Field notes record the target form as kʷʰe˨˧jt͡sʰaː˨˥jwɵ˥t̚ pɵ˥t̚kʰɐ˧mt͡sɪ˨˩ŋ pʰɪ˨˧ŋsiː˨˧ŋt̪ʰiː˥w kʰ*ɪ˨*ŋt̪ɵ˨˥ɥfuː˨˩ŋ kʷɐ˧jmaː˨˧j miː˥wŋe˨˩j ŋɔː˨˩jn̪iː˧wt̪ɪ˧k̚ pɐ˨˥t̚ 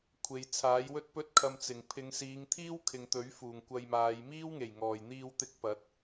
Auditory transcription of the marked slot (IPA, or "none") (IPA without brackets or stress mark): ɪ˨